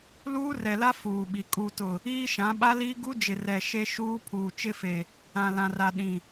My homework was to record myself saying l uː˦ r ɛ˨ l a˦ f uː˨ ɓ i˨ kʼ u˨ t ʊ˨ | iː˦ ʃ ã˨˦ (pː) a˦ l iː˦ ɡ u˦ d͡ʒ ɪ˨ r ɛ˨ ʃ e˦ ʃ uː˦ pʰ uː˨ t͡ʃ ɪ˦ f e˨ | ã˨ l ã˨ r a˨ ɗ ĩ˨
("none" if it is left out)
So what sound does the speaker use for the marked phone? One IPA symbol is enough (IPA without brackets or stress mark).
ɓ